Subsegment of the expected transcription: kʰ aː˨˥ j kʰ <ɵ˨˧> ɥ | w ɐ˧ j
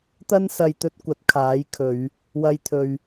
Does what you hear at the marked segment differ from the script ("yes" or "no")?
no